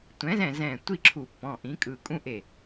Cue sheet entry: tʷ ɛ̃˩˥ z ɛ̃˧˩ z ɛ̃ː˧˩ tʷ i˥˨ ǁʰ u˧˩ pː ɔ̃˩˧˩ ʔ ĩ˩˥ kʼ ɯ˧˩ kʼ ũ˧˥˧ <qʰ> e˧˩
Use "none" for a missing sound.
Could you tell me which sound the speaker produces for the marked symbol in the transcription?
ʔ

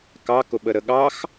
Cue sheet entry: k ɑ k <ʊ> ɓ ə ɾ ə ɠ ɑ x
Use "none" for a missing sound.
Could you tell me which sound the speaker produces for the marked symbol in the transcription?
ʊ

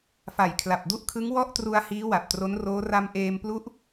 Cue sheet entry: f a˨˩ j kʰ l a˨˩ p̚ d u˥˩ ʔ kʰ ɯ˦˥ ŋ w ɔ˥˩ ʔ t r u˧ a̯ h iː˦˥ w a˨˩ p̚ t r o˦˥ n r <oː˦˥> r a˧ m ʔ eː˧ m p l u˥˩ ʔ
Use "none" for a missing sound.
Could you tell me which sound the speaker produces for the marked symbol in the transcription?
oː˦˥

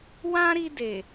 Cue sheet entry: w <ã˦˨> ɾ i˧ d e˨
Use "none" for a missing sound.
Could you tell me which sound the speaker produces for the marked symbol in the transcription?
ã˦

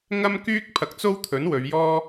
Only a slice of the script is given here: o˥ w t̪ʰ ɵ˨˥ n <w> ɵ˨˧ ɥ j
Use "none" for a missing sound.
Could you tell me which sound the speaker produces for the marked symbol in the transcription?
w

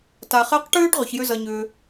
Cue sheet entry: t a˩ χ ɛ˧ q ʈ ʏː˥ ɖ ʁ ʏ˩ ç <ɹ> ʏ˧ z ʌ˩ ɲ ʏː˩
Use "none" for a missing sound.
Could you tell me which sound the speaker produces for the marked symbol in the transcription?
j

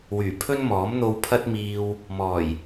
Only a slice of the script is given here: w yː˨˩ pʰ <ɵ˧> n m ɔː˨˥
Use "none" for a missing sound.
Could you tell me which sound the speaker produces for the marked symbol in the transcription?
ɵ˥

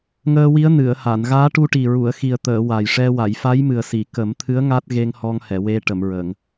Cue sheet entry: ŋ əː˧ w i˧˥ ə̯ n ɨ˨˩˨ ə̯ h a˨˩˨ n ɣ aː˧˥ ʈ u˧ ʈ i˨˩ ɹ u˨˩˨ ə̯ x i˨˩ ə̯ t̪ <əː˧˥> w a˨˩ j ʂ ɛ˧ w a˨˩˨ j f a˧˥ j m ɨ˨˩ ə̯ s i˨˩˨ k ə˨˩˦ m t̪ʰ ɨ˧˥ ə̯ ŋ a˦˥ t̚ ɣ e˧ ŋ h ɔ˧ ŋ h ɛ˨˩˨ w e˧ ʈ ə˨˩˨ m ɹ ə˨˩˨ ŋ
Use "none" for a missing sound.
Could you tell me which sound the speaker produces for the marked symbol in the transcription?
əː˨˩˨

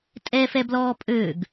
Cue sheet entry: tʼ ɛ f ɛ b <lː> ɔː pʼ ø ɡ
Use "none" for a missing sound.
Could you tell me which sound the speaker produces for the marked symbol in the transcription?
l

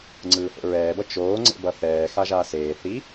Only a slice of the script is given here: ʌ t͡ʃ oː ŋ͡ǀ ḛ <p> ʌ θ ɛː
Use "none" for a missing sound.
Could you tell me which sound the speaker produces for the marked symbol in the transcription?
b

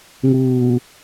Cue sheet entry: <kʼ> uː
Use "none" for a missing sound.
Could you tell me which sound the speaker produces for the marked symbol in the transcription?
ŋ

